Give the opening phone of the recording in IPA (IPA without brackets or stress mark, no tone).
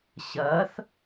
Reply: ɕ